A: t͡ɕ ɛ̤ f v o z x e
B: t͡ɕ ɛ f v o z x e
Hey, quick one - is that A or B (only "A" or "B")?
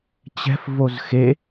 A